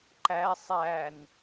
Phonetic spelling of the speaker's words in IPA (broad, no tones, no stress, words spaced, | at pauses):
ǃæ sˤæn